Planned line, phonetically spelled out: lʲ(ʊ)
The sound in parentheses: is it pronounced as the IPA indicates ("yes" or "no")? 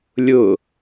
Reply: yes